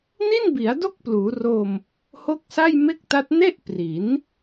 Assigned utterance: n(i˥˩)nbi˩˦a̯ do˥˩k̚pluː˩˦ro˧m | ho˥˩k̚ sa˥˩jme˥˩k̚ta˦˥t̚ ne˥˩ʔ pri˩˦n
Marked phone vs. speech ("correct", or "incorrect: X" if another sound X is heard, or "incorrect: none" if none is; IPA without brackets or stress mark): correct